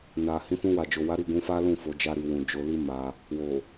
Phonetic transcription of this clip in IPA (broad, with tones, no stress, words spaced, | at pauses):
na˨ hĩ˨˦ fũ˧wa˨ d͡ʒo˨wa˨˦ɾi˦˨ ɡũ˨˦fa˦lũ˦˨ fo˨˦d͡ʒa˦ɾi˧ wũ˨d͡ʒo˧li˦ ma˧ | wo˨